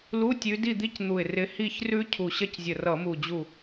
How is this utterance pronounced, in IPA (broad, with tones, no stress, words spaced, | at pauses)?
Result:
lu˧˥˧tʲʉ˨˦ di˥˨d̪i˦˥cn̪u˧˩ɪ̯ rɪ˨˦ hi˥˨çrʉ˦˥ cʰu˧˩ɕɐ˥˨czʲə˧˩rʌ˧˩˧ mu˧˩d͡ʑu˧˩